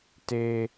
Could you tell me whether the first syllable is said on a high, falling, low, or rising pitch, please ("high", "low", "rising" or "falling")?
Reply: low